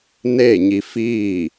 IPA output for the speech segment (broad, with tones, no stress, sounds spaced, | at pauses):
n eː˥˨ ɲ i˧ f iː˥˨